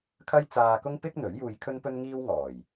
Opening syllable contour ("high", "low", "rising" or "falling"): high